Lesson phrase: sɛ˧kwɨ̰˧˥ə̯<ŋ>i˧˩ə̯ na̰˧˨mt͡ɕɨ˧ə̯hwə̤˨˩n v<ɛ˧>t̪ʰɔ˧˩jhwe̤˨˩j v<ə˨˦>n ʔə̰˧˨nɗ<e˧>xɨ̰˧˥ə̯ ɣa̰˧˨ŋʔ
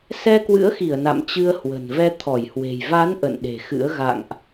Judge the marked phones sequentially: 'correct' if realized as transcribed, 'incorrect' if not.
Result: incorrect: x, correct, incorrect: a˨˦, incorrect: e̤˨˩

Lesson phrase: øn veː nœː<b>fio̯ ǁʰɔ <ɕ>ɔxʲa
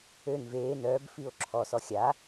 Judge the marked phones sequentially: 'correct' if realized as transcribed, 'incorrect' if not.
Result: correct, incorrect: s

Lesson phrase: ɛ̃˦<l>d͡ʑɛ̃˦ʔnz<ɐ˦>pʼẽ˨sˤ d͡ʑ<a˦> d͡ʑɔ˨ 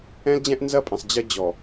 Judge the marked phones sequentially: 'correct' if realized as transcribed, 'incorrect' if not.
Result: correct, correct, incorrect: ɐ˦

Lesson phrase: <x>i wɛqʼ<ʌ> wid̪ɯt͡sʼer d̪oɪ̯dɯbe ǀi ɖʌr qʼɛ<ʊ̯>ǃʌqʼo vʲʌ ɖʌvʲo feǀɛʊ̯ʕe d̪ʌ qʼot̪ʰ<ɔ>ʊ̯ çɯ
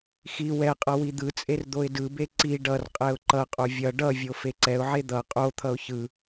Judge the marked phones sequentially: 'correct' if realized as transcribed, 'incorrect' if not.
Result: correct, correct, correct, incorrect: ʌ

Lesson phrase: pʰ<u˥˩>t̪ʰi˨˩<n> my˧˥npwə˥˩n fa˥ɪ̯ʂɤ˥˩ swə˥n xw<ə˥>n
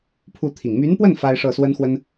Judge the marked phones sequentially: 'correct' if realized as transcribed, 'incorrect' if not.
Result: correct, incorrect: ŋ, correct

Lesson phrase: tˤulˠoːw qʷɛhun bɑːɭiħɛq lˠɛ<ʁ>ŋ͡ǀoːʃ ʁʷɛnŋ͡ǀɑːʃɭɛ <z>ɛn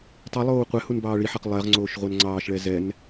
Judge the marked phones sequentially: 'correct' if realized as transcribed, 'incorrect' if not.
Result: correct, correct

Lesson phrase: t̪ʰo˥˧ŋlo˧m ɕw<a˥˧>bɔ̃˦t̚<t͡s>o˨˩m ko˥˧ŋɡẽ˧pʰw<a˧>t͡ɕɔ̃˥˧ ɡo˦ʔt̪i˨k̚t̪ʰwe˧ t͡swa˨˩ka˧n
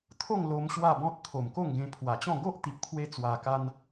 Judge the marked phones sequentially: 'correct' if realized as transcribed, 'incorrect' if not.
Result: correct, incorrect: t̪ʰ, incorrect: a˨˩

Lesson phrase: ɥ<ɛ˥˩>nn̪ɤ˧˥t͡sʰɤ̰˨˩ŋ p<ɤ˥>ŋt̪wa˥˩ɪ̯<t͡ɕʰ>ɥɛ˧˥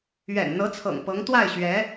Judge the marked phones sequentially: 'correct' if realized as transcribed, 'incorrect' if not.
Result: incorrect: ɛ̰˨˩, incorrect: ɤ˧˥, incorrect: ɕ

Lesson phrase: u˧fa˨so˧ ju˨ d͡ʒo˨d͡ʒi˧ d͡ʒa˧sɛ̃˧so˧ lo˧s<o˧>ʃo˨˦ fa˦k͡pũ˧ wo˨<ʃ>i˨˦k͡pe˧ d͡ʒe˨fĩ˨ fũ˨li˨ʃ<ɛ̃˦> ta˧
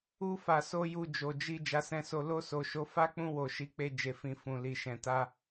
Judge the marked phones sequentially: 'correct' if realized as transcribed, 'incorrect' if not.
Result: incorrect: o˨, correct, incorrect: ɛ̃˨

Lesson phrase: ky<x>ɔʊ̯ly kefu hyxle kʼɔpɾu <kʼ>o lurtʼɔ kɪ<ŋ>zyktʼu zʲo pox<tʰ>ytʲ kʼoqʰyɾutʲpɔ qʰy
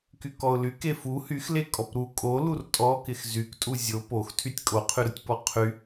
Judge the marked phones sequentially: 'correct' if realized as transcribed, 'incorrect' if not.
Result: incorrect: k, correct, incorrect: x, correct

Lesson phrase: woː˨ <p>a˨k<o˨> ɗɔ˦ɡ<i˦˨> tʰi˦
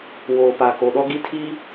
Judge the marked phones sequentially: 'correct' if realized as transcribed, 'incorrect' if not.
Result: correct, correct, correct

